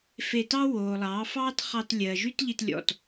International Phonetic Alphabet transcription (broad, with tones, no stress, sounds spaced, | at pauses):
f e˧ t ɑ˦ w oː˨ lˠ ɑː˨˦ f ɑː˦ t χ ɑ˧ t lʲ ɜː˨ ʒ y˦ t ʎ i˧ t lʲ ɔ̰˨ t